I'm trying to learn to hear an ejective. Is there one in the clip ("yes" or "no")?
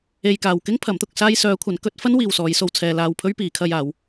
no